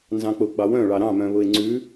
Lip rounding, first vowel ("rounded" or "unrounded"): unrounded